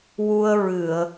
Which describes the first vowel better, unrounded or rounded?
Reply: rounded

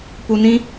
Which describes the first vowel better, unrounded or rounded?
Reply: rounded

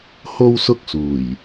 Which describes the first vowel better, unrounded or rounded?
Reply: rounded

